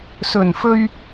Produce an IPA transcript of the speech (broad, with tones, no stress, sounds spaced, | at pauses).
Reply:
s ɵ˨˩ n f ɵ˧ ɥ